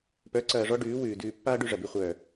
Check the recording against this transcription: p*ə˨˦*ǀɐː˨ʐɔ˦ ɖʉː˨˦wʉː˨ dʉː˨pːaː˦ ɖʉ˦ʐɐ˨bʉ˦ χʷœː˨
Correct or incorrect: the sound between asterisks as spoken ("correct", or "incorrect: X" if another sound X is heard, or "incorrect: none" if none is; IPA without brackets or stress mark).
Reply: incorrect: œ˨˦